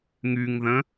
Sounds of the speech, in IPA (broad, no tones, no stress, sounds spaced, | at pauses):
ŋ y ŋ ð ə̃